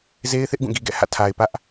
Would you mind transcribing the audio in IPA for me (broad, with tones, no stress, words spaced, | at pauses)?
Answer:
ze˦ɪ̯θɪ˦ʔ ɡũ˦˨ɡi˦ɡɛ̰˦˨ hä̰˦˨tʰa˨ɪ̯pä˦ʔ